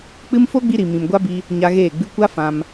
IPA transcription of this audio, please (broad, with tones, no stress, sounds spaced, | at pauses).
k͡p ɨ˦ m f o˦ ɡ͡b i˧ ɾ i˨ m ĩ˨ m ɡʷ a˦ b i˧ | ɲ a˧ ɣ eː˦˨ ɡ͡b ɨ˧ kʷ a˦ f ã˧ m